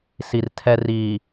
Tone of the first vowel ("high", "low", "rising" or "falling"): low